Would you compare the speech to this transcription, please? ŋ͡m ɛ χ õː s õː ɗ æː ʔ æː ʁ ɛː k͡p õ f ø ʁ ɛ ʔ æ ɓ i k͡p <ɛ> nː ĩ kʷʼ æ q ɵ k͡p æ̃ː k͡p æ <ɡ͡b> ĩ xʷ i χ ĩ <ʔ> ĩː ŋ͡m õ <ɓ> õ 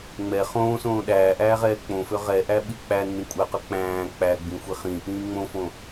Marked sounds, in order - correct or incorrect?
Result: incorrect: æ, correct, correct, incorrect: f

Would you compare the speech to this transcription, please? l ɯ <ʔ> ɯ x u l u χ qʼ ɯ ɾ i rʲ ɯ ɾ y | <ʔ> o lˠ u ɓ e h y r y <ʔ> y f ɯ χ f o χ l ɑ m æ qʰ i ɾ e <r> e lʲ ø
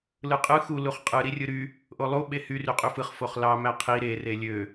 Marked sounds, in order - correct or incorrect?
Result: incorrect: qʼ, correct, incorrect: qʼ, correct

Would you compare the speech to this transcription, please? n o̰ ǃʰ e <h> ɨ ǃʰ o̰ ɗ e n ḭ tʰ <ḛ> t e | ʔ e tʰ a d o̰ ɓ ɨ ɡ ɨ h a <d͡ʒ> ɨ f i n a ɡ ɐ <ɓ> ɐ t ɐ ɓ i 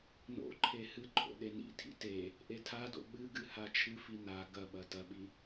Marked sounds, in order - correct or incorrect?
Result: correct, incorrect: ḭ, incorrect: t͡ʃʰ, correct

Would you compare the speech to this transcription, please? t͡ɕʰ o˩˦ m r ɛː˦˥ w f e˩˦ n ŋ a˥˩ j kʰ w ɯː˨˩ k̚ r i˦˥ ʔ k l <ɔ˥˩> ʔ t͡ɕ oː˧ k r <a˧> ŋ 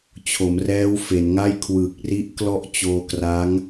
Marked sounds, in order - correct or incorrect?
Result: correct, incorrect: a˦˥

